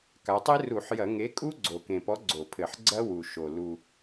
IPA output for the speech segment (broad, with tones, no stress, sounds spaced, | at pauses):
k a˩˧ tˤ e˦˥ r u˧˩˧ ħ j ɐ˧˩˧ ŋ e˨˥ kʼ u˦˥ ɡ͡ǀ o˨˩ k ẽ˨˩ p ɔ˨˥ ɡ͡ǀ o˧˩˧ pʰ ɘ˧˩˧ ħ ɡ͡ǀ ɐ˦˥ w u˨˩ ʃ o˨˩ l u˨˩